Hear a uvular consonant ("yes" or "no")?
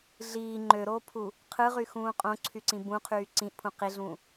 yes